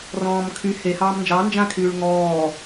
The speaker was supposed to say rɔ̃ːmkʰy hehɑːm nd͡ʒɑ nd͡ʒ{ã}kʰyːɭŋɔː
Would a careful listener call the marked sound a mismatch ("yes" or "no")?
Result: no